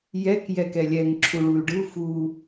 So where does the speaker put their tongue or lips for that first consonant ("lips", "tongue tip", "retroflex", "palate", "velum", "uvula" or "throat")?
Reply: palate